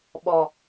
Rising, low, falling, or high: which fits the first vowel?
low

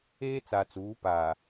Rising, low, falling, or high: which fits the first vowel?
high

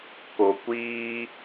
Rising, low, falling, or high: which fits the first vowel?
low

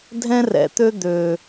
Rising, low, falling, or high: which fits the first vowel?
high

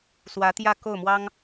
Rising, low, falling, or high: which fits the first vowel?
rising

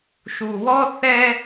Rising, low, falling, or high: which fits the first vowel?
low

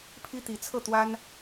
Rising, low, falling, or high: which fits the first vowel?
high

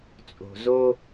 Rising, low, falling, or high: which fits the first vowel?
low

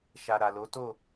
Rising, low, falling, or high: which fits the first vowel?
low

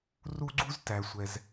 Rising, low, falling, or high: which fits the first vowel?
high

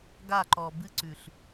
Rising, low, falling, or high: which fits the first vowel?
falling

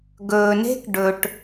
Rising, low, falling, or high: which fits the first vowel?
low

